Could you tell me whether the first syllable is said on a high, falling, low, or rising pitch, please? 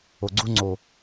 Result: low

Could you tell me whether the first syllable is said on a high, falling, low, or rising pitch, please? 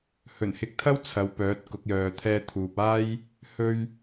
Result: low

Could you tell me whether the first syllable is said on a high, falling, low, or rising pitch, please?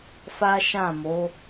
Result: high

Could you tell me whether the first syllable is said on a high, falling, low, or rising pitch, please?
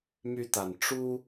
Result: high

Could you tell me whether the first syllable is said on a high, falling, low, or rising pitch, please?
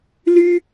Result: high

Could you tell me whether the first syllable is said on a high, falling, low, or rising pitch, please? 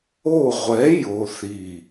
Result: falling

